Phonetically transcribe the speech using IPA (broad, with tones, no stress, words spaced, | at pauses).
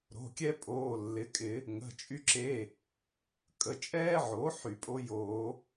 ɾo̤˩˧˩kʲɛ˥ pʼoː˩˧˩lːɪ˩˥kʼɪ˨˩˦ | ŋə̤˩˧˩ t͡ʃʼy˧ǁe˩˧˩ | kʼə˩˧˩t͡ʃʼɛː˥ʕo˩˥ ħy˨˩˦pʼo˥joː˨˩˦